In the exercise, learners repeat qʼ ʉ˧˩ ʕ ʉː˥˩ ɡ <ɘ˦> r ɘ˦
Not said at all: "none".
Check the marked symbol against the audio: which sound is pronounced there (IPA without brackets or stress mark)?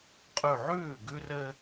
ʉ˦